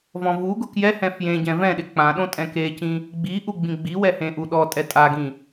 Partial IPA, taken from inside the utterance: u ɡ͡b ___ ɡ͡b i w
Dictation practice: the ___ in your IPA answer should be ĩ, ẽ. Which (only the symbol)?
ĩ